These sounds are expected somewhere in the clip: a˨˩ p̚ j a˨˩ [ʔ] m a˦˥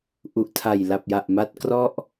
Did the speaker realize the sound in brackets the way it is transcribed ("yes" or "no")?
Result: yes